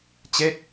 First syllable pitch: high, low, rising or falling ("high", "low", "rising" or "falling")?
falling